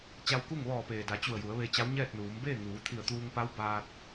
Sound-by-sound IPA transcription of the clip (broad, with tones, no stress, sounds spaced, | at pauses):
t͡ɕ a˧ w k u˥˨ ŋ ʋ ɔː˧˩ p eː˩ d a˩˧ t͡ɕ u˧˩ ə̯ j u˩˧ ə̯ ʋ e˧ t͡ɕ a˧˥ w ɲ ɛː˥˨ t̚ n uː˩˧ m b eː˥˨ ŋ uː˩˧ t̪ʰ i˧˩ ə̯ t̪ uː˧ ŋ p a˧˥ w b aː˧ t̚